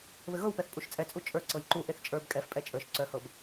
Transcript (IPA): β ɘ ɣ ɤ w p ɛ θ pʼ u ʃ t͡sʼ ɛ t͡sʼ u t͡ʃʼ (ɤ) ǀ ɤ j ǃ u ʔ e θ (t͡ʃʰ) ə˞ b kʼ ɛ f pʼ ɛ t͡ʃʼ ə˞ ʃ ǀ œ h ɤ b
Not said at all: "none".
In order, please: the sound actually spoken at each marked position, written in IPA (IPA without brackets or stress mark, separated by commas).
ə˞, t͡ʃʼ